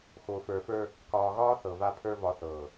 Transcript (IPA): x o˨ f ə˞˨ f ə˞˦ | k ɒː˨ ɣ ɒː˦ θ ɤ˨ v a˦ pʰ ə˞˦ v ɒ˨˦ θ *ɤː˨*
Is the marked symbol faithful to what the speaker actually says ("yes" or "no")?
yes